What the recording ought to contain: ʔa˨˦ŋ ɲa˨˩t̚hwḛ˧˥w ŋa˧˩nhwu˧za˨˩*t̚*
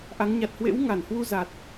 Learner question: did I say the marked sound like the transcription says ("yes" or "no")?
yes